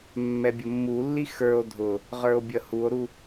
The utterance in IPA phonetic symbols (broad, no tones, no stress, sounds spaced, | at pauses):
mː ɛ bʲ ʊ mː u lː i x ə˞ o̯ dʱ ʊ | ʁ ə˞ o̯ bʲ ʌ h u o̯ ɾ u